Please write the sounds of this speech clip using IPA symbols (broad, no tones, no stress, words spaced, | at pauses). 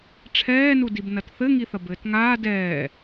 ʈ͡ʂʰɛːnudib nɐtθɘ ŋiθɐbɘːtŋaː dɛː